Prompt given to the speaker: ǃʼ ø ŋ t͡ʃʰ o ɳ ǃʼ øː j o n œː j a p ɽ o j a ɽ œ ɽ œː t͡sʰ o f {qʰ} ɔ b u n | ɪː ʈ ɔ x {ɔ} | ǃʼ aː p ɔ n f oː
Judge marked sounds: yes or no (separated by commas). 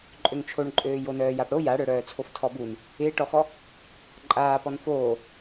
no, yes